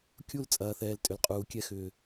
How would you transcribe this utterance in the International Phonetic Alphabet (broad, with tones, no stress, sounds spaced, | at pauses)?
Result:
kʲ u˦˨ l t͡sʼ ɐː˨ θ ɛː˨ l tʼ ʏ˨ l qʼ uː˨ kʲ ɛ˧ x ʏː˨